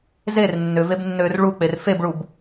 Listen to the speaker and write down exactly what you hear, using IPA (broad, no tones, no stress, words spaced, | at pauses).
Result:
zer nːʏvebnːøːr ɭuk͡per febɭub